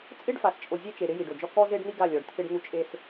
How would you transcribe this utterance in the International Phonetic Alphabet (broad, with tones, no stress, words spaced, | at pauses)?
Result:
t͡sʼɪ˦ɖ fa˨st͡ʃʼo˨zʲe˦t͡ʃe˨ ɾɪ˦ji˨ɖo˨d͡ʒɔ˦ kɔ˦ze˦ɖn̪i˦ ɡa˦˨lʲɔ˨ɖt̪ʰɪ˦ɖn̪u˦ t͡ʃʼe˦s